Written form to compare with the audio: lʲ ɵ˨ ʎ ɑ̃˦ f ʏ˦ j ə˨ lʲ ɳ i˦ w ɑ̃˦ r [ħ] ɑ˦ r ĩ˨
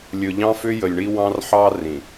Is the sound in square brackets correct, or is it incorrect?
correct